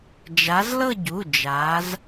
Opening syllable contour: rising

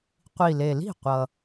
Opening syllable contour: low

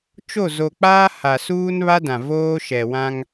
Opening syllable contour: falling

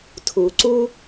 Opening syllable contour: low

